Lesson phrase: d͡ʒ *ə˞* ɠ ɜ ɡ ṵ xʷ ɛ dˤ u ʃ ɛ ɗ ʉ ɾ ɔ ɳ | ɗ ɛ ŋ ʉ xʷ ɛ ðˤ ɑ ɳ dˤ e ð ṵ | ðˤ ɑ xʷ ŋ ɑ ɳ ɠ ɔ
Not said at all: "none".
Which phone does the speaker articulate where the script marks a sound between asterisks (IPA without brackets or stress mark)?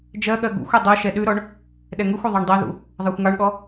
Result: ɜ